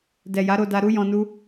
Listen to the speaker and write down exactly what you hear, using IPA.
dɛ˨ja˨˦ɾo˧da˧ ɾu˦jɔ̃˧nu˦

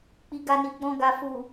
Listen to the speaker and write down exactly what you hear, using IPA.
k͡pi˧ɡa˧ni˨ ɡ͡bɔ̃˧ɡa˨ fu˨

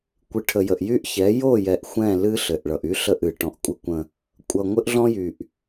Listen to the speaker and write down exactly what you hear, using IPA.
kʷɨ˨ʈʰə˨jə˨ʔjy˦ʔ çɛ˨˦jo˦˨ jɛ˨ʔ xʷɛ̃˦˨lɨ˦ɬɘ˨ʔ ɭʌ˨ʔy˦ɬə˦˨ʔ ɨ˨ ʈɔ̃˨ʔ kʷʼə˦kʷə̃˦ | kʷʼʌ˨ ŋʷɘ˦ʔɮɔ̃˦jy˨ʔ

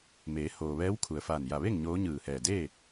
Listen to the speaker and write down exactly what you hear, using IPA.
meː˩˧ hoː˩ ʋɛː˧˥wkʰu˩ə̯faː˧˩n ja˧˩ʋe˥˨ŋ ɲoː˧˥ɲɯː˧˩hɛː˧˩ deː˥˨

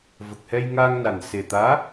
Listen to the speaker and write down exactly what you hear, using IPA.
və˨˩k̚hɛ˧jŋaː˧ŋna˨˩n se˨˩t̪aː˧˥

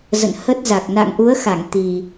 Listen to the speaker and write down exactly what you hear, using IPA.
zə̰˧˨nhə˦˥t̚za˨˩k̚ na̰˧˨ŋʔu˨˦ə̯xa˧˩ŋ t̪i˨˩

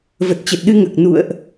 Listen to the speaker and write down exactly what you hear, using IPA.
və˨˩t̚t͡ɕə˨˩t̚ɗɨ˧ŋəː˨˩k̚ nṵ˧˨ə̯ʔ

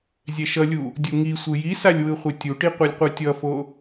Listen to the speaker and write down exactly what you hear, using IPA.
zʲɛʃʌlʲu | dʲuŋisʷɯ jisalʲ wɯχʷetʲuʈi qʷɛlʲqʷɯtʲʌfo

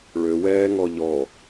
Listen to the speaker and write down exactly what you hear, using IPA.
ɭøwɛːŋɔ ʎɔ

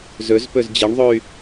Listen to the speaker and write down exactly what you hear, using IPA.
zɵzpɵz d͡ʑeɳðˤoy̯

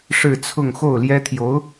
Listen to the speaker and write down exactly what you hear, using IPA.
ʂɻ̩˥˧t͡sʰʊ˥˧ŋ xo˥˩ʊ̯ljɛ˥ t̪ʰjo˧˥ʊ̯

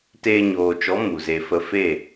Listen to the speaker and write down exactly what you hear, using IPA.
teː˧ɲoː˨t͡ʃɔ˨˦ mu˨ze˧ fə˧fe˦˨

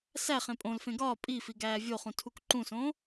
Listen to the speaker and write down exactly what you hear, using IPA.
sæ χẽpʼõlfẽ ɡɒː pʼifi ɡæːvʲoχũ tʰukǃũsõ

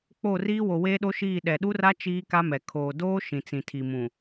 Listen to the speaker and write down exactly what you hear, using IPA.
k͡po˦˨riː˦ wo˨weː˦ɗo˦ʃiː˦˨ ɗɛ˨ɗu˦ra˦ t͡ʃiː˦ ka˦mɛ˨ kʰoː˨doː˦ ʃĩ˨t͡sĩ˨tʰi˨mũ˨

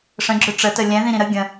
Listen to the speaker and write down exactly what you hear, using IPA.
ʂə̃ɡ͡ǁʏ ʈ͡ʂətə lʲɛ̃ðĩɾĩ ɾə ɡʲə̃

